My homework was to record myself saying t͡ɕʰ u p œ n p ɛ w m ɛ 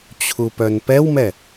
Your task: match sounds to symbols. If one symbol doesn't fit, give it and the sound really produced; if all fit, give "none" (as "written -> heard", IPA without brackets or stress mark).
none